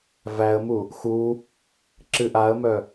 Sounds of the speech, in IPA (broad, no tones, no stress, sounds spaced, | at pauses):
v æ ə̯ m u | x u | ǁ ɨ ʔ a ə̯ m œ